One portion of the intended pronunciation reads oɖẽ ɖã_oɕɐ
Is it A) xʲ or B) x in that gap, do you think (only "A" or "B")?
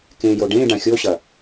A